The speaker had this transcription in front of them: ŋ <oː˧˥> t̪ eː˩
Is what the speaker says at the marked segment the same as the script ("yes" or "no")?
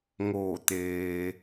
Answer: no